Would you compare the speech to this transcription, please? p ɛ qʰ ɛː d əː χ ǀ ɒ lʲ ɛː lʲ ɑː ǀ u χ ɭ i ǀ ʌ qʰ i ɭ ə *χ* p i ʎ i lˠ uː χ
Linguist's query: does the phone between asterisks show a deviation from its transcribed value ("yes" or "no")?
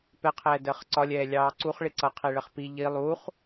no